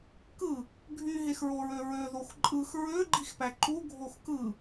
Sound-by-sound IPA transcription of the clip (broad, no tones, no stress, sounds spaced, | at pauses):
k ɯ | ɡʱ y ɦ e x ɹ o ɹ ø ɹ ø ð o x ǃʼ ɯ x ɹ ø ɡ͡ǃ i x p æ ǃ u ɡʱ o x k ɯ